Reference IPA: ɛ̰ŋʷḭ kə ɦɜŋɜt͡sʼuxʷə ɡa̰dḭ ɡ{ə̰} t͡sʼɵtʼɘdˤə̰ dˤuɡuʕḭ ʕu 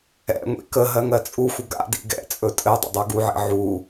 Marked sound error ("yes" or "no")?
yes